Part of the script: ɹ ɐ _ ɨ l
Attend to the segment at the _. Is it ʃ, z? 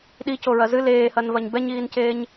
z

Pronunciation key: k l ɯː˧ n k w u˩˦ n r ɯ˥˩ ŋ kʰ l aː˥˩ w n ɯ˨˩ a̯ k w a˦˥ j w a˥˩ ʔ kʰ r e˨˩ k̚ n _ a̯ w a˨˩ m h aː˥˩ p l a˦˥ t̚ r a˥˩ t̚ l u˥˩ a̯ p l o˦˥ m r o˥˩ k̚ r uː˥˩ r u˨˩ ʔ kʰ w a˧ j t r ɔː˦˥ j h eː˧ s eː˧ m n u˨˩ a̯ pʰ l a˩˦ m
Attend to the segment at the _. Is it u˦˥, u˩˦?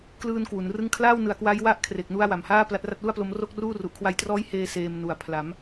u˦˥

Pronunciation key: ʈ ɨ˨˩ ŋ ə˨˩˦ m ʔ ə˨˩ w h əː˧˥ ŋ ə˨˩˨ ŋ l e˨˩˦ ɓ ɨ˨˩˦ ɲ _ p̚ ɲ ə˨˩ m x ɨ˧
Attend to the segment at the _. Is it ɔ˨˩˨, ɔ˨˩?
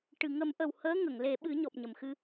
ɔ˨˩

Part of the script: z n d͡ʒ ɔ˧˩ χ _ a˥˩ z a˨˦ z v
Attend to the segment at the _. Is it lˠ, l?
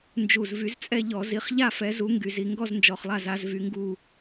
lˠ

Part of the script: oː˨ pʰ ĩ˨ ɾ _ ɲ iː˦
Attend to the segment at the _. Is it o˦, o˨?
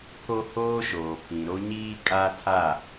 o˦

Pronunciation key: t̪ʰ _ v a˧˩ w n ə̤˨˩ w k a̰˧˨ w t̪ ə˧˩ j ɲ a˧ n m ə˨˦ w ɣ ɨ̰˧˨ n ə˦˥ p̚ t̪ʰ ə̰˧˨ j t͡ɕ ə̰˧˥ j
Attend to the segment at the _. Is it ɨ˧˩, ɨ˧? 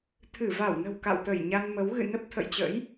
ɨ˧˩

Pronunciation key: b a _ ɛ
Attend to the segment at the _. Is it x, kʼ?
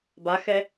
x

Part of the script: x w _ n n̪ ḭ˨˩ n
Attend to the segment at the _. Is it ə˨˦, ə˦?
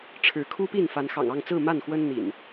ə˦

